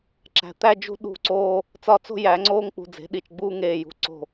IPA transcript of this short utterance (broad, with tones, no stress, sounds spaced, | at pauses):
ǁ æ̤˧˥ t̪ æ˥ d͡ʒ ṳ˥ ɗ ṳ˦˨ ǀ oː˥ | t͡s ɒ˦˨ t͡s o̤˥ j æ˧˥ ŋ͡ǀ oː˥ ŋ k͡p ṳ˦˨ d͡z e̤˧˥ ɗ i˦˨ t͡ʃ ɡ͡b uː˥ ŋ eː˦˨ j ṳ˧˥ ǀ o̤˦˨